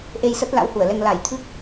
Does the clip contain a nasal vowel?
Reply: no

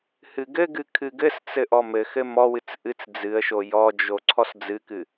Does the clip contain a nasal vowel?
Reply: no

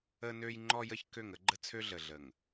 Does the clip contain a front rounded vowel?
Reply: yes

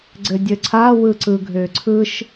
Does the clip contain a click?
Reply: yes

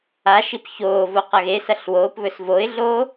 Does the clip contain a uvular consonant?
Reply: yes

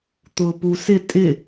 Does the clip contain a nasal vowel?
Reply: no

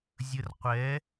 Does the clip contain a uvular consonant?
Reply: yes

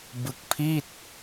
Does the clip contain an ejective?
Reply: no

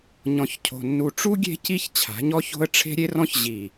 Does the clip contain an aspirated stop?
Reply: yes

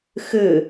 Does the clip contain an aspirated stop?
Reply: no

